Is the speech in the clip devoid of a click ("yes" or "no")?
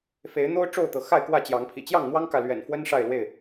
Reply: yes